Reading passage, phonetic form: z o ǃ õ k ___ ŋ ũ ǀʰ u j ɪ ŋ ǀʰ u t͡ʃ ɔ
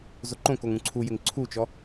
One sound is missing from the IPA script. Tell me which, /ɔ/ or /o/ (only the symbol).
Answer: o